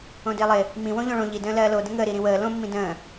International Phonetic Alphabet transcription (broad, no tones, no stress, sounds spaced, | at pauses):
õ d ɪː lˠ ɪ | m ĩ w õ ʎ õ ɭ õ ʎ i d ə̃ː l ɜː l o d ə̃ ŋ əː ɾ i ɾ ĩ w əː l õ mː ĩ d ə̃ː